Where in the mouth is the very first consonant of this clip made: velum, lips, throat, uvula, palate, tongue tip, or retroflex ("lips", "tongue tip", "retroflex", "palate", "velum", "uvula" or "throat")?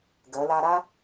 velum